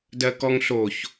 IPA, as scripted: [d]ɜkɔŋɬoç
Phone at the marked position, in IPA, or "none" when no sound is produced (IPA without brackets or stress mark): d